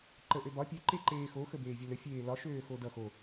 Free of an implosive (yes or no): yes